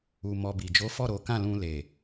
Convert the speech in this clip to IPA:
u˨ m ɔ˧ b i˨ d͡ʒ o˨˦ f ɔ˦˨ ɾ o˨˦ k ã˦˨ l ũ˧ l e˨

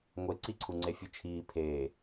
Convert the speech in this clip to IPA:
ŋʷ e ǀ i ǀʰ u ŋ͡ǀ e fʲ u t͡ʃʰ iː pʰ eː

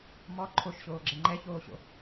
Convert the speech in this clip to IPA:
m ɔ ǃʰ o ʃ ɕ oː ɡ͡ǁ ɛ ŋ͡ǃ ɛ ç oː ɕ o̰

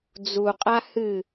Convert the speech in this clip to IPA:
d͡z u qʼ a h ɨ

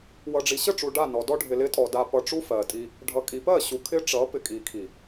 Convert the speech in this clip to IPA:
w ʌ˨ ɖ͡ʐ i˨ ɕ ə˦˨ ʈ͡ʂ u˨ ɖ a˦˨ n ɔ˨ d ɔ˦ ɖʱ ɪ˨ l ɪ˦ tʼ ɔ˨ d a˨ p ʌ˨ ʈ͡ʂ u˦ f ɜ˨ tʼ i˦ | ɖʱ ʌ˨ kʼ i˨ p ɜ˦˨ ɕ u˨ kʰ ɪ˦ ʈ͡ʂ ʌ˨˦ p ɪ˨ kʼ i˨ kʰ i˨

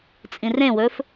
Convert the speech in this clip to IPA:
t͡sʼ ĩ r ẽ w ɵ f

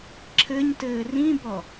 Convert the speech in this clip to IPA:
ǁʰ ɘ ɲ t ɘː r ĩ b ɔ

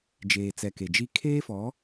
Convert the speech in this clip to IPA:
d͡ʒ eː˨ t͡s ɛ˨ k e˨ d͡ʒ i˦ kʰ eː˦ f ɔ˨˦

